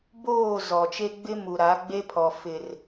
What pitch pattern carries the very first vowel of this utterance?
falling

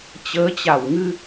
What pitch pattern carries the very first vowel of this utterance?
rising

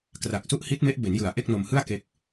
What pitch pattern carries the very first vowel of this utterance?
low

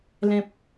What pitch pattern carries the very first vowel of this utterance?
high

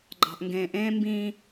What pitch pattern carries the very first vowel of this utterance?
low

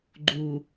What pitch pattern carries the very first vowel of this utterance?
low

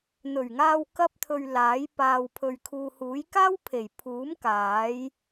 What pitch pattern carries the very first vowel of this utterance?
low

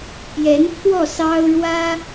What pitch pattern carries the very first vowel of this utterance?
rising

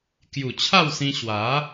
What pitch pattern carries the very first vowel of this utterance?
low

